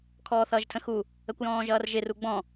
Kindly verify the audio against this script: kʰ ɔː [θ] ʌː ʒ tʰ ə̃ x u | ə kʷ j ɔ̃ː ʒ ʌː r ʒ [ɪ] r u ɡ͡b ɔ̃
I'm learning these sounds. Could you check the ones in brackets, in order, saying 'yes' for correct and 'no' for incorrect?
yes, yes

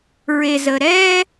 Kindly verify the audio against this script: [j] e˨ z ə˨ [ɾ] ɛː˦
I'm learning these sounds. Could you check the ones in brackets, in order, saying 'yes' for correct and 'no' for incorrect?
no, yes

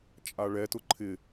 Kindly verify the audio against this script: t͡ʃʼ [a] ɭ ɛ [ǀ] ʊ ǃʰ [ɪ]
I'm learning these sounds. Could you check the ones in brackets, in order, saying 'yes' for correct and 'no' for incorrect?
yes, no, yes

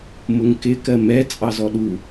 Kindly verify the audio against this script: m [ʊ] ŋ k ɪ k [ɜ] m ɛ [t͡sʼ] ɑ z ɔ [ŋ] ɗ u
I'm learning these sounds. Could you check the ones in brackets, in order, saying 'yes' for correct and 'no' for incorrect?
yes, yes, yes, no

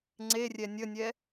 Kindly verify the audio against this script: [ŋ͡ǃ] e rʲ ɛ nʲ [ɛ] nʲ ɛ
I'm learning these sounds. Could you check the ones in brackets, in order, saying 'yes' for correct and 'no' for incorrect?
no, no

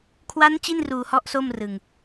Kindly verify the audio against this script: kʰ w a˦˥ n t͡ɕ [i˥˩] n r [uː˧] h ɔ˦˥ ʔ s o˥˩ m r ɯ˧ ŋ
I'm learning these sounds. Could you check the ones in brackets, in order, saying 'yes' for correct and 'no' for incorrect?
yes, yes

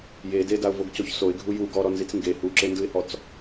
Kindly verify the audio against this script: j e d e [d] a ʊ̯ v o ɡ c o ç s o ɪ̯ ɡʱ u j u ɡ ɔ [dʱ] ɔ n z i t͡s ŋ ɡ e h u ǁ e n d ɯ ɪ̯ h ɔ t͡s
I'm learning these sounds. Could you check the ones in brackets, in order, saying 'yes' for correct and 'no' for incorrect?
yes, no

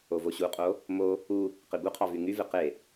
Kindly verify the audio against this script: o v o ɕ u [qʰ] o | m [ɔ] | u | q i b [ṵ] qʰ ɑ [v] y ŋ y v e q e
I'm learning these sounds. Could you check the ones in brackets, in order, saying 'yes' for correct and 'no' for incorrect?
no, no, no, yes

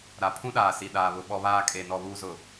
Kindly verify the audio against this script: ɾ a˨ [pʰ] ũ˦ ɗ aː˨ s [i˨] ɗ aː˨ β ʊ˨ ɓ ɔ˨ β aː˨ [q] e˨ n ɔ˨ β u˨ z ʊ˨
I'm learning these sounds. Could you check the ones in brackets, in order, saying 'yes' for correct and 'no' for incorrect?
yes, yes, no

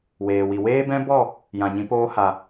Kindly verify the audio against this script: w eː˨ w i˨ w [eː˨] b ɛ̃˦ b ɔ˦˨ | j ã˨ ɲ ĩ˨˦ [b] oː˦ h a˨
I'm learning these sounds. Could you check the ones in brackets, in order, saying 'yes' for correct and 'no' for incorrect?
no, no

